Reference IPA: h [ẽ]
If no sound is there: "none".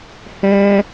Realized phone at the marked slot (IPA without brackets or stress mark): ɛ̃